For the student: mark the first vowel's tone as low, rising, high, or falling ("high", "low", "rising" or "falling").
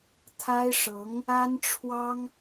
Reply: high